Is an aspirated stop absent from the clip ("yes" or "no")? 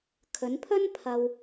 no